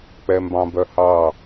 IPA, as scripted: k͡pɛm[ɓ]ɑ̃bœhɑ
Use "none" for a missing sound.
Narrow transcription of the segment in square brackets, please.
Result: b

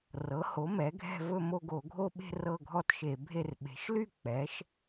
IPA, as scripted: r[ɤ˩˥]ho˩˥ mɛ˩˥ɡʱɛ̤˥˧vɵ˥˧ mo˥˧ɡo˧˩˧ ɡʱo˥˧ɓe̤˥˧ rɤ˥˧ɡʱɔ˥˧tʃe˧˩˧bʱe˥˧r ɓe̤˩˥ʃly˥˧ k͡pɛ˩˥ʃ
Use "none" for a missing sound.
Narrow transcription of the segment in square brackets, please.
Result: ɤ˩˥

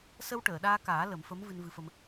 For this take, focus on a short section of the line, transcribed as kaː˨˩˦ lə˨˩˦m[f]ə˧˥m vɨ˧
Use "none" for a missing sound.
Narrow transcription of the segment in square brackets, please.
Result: f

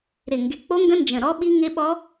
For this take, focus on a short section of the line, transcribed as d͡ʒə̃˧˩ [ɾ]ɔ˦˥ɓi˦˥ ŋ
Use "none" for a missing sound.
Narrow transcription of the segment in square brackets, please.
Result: ɾ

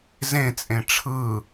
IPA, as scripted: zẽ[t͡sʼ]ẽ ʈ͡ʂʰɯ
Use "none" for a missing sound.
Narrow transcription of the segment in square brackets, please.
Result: t͡sʼ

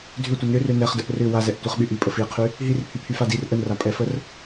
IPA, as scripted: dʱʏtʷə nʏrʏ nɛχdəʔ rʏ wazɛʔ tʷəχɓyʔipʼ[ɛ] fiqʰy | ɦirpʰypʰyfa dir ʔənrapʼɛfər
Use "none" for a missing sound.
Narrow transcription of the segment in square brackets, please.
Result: ə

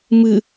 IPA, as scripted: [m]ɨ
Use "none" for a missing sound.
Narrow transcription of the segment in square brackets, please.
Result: m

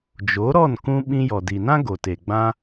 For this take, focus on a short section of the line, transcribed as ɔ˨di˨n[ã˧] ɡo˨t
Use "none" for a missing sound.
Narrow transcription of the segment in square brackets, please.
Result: ã˦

